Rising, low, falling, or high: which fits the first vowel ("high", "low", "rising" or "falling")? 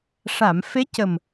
low